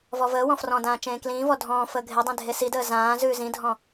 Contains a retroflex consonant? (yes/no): no